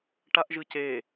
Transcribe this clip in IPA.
ʈ a ʔ ʒ ɯ c e

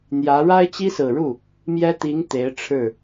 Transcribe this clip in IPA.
n̪ j ä˧˥ ɻ a˥ ɪ̯ t͡ɕ i˥ s ɹ̩˨˩ ɻ u˥˩ | m j ɛ˥ t̪ i˧˥ ŋ t̪ e˧˥ ɪ̯ ʈ͡ʂʰ ɻ̩˥˩

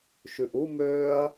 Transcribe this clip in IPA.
ʃ ʉ ʔ u m øː ɐ̯

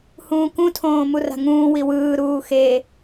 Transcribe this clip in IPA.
h ũː k ũ tʰ õː m u r a̤ ŋ ũː w i w ɯː ɾ uː x e

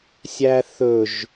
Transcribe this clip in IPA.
sʲ æ θ ɵ ʒ

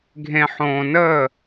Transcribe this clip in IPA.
ɡʱ ẽ˨ ħ õː˨ n əː˦˨

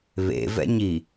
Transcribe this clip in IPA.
β ḛ v ɛ̰ ɲ i

